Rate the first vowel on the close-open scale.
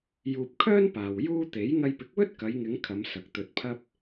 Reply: close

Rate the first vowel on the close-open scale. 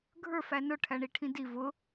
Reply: mid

